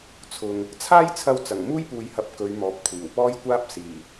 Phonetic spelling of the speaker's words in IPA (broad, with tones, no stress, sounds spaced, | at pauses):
t͡sʰ ʊ˨ ŋ | t͡sʰ aː˥ j t͡sʰ ɐ˧ w t͡s ɐ˨˩ ŋ m uː˥ j p uː˨ j h ɐ˨˥ p̚ k ɵ˨˧ ɥ m ɔː˨ p̚ kʷʰ iː˨˩ w p ɔː˥ j kʷ aː˥ p̚ s iː˨˩